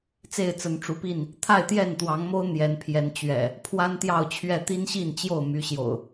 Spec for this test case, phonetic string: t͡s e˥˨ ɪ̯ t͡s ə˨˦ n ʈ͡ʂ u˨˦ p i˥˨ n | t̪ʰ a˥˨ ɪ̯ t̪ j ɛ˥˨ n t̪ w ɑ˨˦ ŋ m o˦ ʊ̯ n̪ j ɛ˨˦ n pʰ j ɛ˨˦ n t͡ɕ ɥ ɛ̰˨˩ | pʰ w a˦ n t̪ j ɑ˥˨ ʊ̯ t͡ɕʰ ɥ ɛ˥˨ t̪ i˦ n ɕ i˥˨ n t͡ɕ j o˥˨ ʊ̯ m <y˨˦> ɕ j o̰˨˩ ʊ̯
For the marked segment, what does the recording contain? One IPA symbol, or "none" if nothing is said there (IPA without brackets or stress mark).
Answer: y˨˦